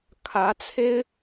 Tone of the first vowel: rising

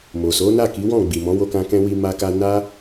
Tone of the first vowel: low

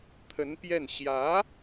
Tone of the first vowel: rising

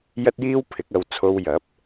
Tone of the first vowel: high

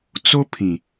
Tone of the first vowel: high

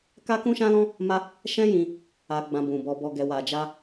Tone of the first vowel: high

